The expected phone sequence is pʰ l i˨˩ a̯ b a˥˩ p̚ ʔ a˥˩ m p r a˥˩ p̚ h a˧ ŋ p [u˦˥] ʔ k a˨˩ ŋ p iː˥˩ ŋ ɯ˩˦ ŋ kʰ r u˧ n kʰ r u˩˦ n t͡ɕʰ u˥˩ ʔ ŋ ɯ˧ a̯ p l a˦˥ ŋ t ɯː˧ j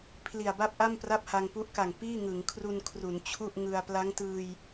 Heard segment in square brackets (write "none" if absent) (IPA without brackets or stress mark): u˦˥